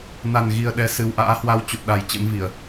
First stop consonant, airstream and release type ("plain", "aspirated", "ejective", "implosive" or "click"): implosive